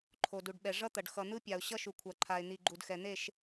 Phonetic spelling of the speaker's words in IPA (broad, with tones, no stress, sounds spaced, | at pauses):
ǃʰ o˨ d u˨ ɖ ɓ ɛ˨ ʐ ʌ˦ t̪ ʌ˨ ɖ x ʌ˨ n̪ ɯ˦ pʲ a˨ ʊ̯ ɕ ʌ˦ ʃ u˨ kʷʰ a˨ ǃʰ a˨ ɪ̯ n̪ i˨ ɡ͡ǃ u˨ d x ɛ˨ n̪ e˦˨ ʃ